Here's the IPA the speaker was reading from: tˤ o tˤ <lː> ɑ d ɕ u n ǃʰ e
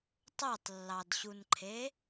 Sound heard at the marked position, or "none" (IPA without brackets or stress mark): lː